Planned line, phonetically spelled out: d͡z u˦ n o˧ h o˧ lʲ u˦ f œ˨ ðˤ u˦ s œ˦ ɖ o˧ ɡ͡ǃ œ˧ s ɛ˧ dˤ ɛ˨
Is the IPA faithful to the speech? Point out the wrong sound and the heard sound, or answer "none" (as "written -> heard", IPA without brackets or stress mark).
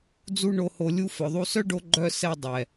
n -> ɳ